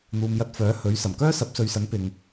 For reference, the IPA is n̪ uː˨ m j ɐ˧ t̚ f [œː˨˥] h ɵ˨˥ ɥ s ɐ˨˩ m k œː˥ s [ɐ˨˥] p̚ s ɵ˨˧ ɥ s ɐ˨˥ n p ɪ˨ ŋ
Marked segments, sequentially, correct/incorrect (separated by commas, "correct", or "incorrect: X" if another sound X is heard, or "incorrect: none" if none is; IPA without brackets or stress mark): correct, correct